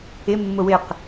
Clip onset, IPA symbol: ɪ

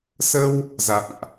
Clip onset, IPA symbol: s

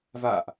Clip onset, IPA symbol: v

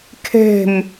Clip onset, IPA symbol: kʰ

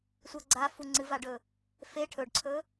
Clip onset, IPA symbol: sʷ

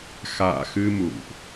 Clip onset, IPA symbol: x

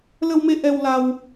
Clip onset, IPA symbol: l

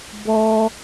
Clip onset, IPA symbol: b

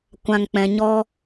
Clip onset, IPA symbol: kʷ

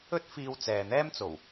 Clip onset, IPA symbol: ɵ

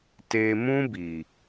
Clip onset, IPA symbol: t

